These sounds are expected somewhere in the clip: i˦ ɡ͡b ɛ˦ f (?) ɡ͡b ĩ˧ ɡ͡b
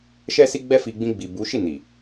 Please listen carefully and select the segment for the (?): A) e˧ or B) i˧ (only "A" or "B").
B